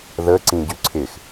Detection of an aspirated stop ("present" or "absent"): present